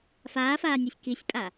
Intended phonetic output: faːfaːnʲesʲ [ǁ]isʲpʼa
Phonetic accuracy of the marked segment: incorrect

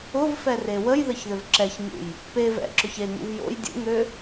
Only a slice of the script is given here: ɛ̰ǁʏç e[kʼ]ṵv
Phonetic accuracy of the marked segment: incorrect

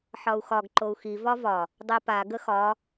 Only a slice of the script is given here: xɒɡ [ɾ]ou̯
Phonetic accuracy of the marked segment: incorrect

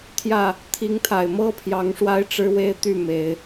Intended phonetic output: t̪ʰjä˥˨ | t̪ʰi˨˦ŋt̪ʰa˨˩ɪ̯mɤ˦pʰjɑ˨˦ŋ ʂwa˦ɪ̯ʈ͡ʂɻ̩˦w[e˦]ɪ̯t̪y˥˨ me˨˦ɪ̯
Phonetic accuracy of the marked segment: correct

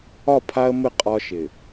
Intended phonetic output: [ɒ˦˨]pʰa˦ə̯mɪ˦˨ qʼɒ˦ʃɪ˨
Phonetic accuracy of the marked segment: correct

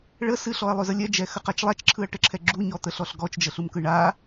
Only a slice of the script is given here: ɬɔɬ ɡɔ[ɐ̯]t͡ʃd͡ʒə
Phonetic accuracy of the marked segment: incorrect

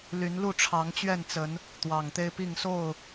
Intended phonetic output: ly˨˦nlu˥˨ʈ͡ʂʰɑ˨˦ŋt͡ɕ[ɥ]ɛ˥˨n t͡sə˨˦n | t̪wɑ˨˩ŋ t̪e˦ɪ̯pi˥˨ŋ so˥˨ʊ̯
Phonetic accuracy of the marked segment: correct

